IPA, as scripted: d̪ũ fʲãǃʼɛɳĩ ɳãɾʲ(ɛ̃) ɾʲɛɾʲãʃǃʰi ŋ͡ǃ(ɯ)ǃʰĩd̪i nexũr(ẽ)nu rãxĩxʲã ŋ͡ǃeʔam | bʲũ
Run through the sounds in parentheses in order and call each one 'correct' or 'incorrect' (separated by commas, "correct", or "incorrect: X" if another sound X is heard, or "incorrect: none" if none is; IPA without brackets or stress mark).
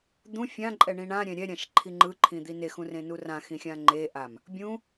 correct, correct, correct